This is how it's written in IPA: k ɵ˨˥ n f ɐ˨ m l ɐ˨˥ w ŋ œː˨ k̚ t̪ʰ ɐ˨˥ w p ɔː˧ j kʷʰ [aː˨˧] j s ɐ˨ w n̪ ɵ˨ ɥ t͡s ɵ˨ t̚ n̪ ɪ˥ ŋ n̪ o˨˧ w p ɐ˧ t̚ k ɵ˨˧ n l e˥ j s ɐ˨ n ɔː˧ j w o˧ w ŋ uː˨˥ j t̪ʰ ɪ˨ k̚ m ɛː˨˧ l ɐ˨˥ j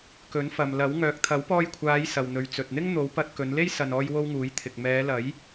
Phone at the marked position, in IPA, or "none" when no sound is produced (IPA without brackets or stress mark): aː˨˧